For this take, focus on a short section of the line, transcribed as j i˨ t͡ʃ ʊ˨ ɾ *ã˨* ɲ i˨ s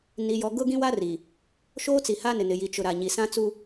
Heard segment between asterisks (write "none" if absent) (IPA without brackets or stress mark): a˨